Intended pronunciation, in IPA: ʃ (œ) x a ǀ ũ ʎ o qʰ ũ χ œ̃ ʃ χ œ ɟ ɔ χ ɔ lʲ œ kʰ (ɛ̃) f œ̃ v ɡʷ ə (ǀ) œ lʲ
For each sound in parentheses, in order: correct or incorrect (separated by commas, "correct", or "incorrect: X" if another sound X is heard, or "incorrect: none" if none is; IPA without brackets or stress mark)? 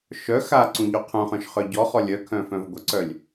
correct, incorrect: œ̃, correct